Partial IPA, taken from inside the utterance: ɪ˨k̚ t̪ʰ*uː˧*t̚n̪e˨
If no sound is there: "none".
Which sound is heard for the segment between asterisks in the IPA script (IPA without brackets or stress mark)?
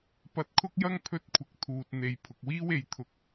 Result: uː˨